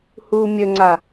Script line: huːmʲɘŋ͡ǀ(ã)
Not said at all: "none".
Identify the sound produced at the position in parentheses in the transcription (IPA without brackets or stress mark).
a